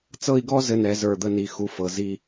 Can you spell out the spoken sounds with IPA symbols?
t͡s ɤ˥˧ i̯ ɡ ɔ˥ z ɘ˧ n ɛ˩˧ z ə˞˧˩ d̪ ə˧ n i˩˧ x u˧ f ɤ˩˧ z i˥˧

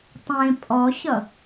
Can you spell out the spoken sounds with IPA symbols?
tˤ ẽ pʼ ɔ ɕ ʌ

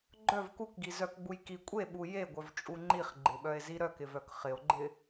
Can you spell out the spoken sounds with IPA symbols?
ɡ͡ǃ œ v k u k ɡ i z œ k ɡ͡b u j k i kʷʼ e ɓ u j e ɡʷ œ v t͡ʃʼ u ŋ͡ǃ i χ ɡ͡ǃ ɪ ɓ œ e̯ z i ɾ œ k ɪ v œ k χ ɪ o̯ ɡ͡ǃ ɪ

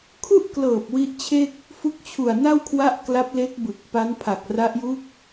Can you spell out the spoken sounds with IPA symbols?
kʰ u˥˩ ʔ k l ɤː˨˩ p̚ w i˦˥ ʔ t͡ɕʰ e˥˩ k̚ | f u˦˥ k̚ t͡ɕʰ u˨˩ a̯ n a˥˩ w kʰ w a˦˥ ʔ k l a˦˥ p̚ l e˦˥ k̚ b ɯ˨˩ k̚ p a˦˥ n pʰ a˨˩ k̚ r a˦˥ ʔ j u˦˥ k̚

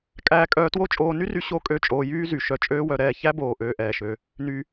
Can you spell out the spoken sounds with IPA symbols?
kʼ æː˦ kʼ œː˦ t w o˦ t͡ʃʼ oː˧ n y˦ r y˧ ɕ o˦ kʼ ø˦˨ t͡ʃʼ oː˧ j yː˦ z y˨ ʃ œ˧ t͡ʃʼ øː˦ w œ˧ ɾ ɛː˦˨ ç æ˦ b oː˨ ʔ øː˧ ʔ ɛː˨ ʃ ø˧ | n y˧

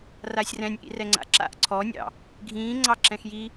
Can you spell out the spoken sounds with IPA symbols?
r aː sʲ r ɛ̃ nʲ ʔ ḭ r ɛ ŋ͡ǀ a̰ ǁ a̰ ʔ ǀʰ ɔ nʲ ɑ̰ | ɡʱ ĩː ŋ͡ǀ ɑ ǁ ɛ̃ x j i

